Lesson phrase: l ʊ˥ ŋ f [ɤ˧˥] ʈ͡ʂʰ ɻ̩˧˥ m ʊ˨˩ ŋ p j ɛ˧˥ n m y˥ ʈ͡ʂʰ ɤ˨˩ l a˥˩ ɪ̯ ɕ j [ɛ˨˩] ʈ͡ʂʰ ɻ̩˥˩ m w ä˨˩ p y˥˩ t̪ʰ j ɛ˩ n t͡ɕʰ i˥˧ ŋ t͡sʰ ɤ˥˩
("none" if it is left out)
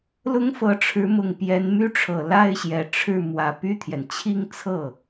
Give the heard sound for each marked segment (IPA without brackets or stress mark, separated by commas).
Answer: ɤ˧˥, ɛ˨˩